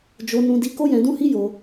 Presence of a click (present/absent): absent